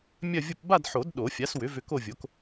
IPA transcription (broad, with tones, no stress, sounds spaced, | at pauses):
mʲ ɐ˥˧ vʲ ʊ˥˧ p b a˥˧ d ħ o˨˩˦ d ɗ o˨˩˦ fʲ a˩˥ s w ʏ˩˥ v ʏ˧ k o˥˧ vʲ o˩˥ k